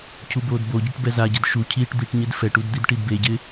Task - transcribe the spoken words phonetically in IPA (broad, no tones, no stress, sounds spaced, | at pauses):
cʰ u b oː d b o ɟ i ʈ b ɛ z a ɟ ɪ d ʃ u cʰ iː ʈ d̪ i ʈ ɲ ɪ d f ɛ ʈ u d d̪ i d ʈ i d b e ɟ ɪ